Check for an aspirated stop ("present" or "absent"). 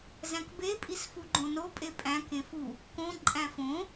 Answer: absent